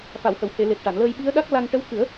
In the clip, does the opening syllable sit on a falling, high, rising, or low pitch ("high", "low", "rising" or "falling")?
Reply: low